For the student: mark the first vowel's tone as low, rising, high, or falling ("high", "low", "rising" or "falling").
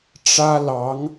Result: high